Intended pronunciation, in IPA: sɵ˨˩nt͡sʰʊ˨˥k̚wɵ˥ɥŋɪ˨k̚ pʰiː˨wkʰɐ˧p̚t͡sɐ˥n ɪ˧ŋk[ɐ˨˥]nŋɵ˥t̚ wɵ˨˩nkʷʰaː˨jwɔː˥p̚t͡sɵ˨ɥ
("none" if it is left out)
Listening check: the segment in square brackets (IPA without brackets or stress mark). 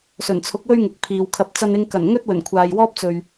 ɐ˨˩